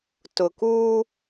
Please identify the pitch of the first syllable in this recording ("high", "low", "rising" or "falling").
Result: low